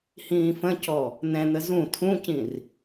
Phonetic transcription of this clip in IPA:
h ĩː f ə̃ c ɔ | n̪ ɛ̃ n̪ ə z ũ tʰ ũ c ĩ r

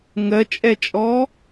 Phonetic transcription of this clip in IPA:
ŋ ɜ t͡ʃʼ ɛ t͡ʃʼ ɔ

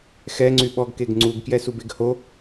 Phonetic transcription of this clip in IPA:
x ɛ ŋ͡ǀ y ɓ ɔ ɡ k e ɡ ŋ͡ǀ u ɡ k j ɛ s u b e ɡ h o

